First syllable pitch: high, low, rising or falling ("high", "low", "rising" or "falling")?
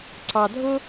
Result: low